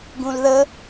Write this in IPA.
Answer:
ɡũlðə

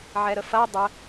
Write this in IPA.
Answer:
ʕɛɾəfɐɪ̯ dˤə

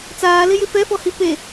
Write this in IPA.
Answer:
t͡saːlɪjɪ fɛfɔhi pe

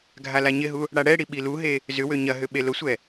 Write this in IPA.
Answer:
ɡʱalaɲɪɦu | ɽaɽɛɽi ɓiluɦe | zʏwø ɲɐɦʏ ɓelʊsʷɛ

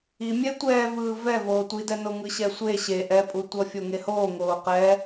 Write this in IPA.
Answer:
imʲɛ tʷɛːvɯː vɛ voːtʷidɛno ŋɯɕɛsʷe ɕe ʔɛpʼutʷʌ fʲoŋehoː ŋoːqɛ

